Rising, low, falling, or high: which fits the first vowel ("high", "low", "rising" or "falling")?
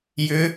rising